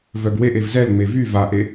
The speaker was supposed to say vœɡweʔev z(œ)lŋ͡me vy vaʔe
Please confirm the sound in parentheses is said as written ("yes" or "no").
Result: no